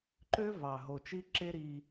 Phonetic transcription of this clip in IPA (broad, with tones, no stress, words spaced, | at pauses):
ǃø˦ vɑ˨ ɦo˨t͡ʃi˦ǁe˦ ɾiː˦